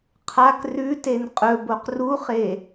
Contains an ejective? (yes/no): yes